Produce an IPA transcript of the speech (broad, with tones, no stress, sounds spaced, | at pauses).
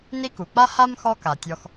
n i˦ k u˩ k͡p a˥ h a˥ m x ɔ˦ k a˩ tʲ ɔ˨ x